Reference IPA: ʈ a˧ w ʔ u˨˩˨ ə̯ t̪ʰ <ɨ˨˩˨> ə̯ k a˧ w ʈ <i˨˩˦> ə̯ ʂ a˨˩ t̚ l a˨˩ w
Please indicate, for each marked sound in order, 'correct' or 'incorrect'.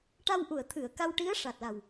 correct, incorrect

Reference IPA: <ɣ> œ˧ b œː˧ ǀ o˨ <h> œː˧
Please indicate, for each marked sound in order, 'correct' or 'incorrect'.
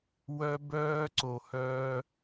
incorrect, correct

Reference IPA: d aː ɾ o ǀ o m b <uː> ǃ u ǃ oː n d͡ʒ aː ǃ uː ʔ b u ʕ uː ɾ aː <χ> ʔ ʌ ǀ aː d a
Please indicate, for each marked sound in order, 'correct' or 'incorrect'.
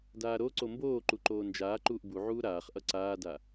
incorrect, correct

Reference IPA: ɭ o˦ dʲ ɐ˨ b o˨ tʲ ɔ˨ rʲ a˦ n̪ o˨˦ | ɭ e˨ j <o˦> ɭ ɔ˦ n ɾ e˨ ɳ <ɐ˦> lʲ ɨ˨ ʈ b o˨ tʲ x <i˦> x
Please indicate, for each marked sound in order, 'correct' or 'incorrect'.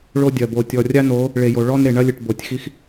incorrect, correct, correct

